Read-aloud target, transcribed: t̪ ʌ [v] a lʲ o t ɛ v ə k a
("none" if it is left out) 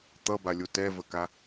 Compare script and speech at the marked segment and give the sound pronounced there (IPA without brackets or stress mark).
b